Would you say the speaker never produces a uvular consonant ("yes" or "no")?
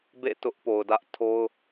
yes